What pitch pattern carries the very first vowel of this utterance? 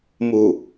low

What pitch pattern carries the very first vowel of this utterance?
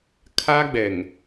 high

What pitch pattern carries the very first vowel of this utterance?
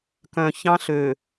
low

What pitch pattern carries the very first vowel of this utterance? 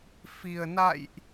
low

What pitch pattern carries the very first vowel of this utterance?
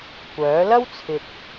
rising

